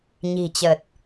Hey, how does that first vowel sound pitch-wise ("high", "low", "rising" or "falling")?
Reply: low